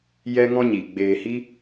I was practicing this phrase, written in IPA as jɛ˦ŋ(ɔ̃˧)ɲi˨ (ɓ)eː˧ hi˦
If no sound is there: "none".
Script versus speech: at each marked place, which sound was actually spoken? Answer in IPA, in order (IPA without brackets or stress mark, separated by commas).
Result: ɔ̃˦, ɡ͡b